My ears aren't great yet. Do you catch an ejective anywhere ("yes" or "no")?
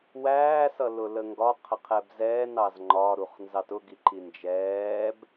no